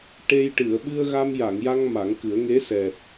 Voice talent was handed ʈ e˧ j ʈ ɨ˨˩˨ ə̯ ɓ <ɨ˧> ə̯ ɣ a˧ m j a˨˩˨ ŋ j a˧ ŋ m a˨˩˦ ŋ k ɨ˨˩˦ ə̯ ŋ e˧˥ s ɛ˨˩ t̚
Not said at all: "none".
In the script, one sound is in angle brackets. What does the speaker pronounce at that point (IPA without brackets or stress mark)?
ɨ˧